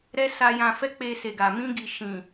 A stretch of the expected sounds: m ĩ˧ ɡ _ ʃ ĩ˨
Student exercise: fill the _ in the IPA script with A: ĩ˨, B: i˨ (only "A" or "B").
B